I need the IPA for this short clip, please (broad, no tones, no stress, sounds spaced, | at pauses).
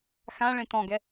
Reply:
x ã ɭ ẽ t ɔ̃ ɡ ɛ